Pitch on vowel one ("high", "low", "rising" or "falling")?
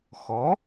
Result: rising